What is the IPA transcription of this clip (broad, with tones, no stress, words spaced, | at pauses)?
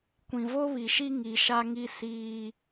kʷĩ˨vo˦βi˨ʃi˦ ŋi˨ʃa˦ŋi˦ siː˦